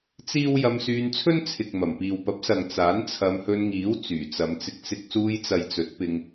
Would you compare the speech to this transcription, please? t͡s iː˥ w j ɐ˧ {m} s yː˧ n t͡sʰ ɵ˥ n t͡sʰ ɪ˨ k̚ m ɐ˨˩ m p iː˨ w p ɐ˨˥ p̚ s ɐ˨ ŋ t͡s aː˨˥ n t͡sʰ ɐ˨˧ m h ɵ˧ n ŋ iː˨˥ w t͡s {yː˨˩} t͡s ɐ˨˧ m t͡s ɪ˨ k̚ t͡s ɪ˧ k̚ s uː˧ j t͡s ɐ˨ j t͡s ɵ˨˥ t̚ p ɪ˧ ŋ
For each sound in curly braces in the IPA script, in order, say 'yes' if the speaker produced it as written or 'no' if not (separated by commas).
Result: yes, yes